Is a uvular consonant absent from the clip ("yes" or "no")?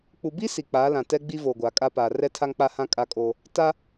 yes